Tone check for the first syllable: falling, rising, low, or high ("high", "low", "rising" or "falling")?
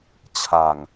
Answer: low